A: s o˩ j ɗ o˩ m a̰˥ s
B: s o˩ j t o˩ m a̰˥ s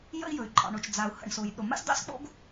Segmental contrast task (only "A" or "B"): A